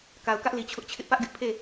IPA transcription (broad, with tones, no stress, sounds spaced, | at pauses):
k a˨ ʊ̯ k ä˦ ʔ l i˨ t͡ɕʰ ʊ˦ ʔ t͡ɕʰ ɪ˦ ʔ p ä˦ ʔ ɡ ɪ˦ ʔ pʰ e˦˨